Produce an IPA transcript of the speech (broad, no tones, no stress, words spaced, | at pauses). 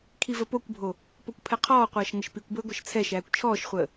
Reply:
kʰivəpokʷbʱo | pokʷpʰɛqʰɔːqʷɐːʃ ŋəʃpikʷbəː ɡʷɐʃt͡sʰɛʃæːkʷ t͡ʃʰɔːʃχʷəː